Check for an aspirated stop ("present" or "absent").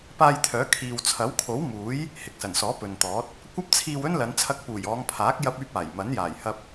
present